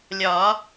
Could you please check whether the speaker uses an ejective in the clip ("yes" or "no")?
no